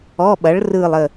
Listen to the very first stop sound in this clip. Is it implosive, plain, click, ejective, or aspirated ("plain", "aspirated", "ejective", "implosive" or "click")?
implosive